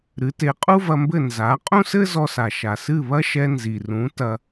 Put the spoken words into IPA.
ɾɨ˩˥te˩˥ qʼu˥vɐ˧mbɘ˥˩ nza˩˥ qʼũ˥sɘ˥zɔ˧sa˩ ʃa˩sɨ˥˩ βɐ˥ʃɛ˧ nzi˩rũ˩˥ tɐ˧

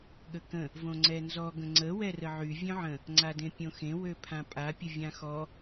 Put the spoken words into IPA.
ɠəkə̃ | võŋ͡ǀɛnzɔ ɡə̃ŋ͡ǀə wɛrəʕy vʲœ̃ʕə̃ | ŋ͡ǀadẽpʲõxẽ wøpʰãpʼa pʲəvʲãxɔ

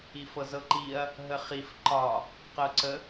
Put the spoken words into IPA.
ifɤzɤǃiɐ̯ | ɦəχif ǃɒ | qɤǀə

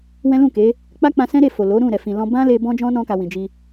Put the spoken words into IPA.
wɛ̃˦lũ˦˨ke˨˦ | k͡pa˦k͡pã˧sɛ̃˦ɾe˦˨ fo˨lo˨˦ɾũ˦˨ ɾɛ˨fĩ˨lɔ̃˧ bã˦le˧ bɔ̃˦d͡ʒɔ̃˦nɔ̃˧ka˨ wĩ˨d͡ʒi˧

